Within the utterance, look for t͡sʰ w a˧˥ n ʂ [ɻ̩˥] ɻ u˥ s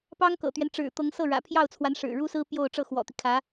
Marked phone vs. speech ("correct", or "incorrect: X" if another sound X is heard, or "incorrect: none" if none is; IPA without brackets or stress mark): incorrect: ɻ̩˨˩